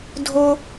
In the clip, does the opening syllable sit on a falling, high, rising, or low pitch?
high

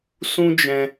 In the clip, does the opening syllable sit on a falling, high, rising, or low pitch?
high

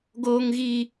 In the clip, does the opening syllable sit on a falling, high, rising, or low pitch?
high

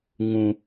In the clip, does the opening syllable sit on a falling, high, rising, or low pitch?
high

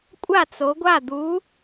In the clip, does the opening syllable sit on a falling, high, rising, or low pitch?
falling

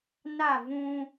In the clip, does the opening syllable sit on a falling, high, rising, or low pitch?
falling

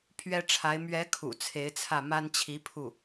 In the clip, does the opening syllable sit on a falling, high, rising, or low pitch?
high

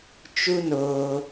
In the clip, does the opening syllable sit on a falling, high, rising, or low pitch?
high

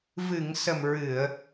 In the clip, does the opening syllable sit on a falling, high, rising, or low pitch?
low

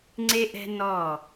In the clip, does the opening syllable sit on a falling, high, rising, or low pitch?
high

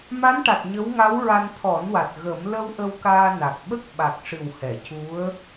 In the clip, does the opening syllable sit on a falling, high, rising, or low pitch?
rising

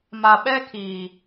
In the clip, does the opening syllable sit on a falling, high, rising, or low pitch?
low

